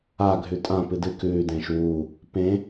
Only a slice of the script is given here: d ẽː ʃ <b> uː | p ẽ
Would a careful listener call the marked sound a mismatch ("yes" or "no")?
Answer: yes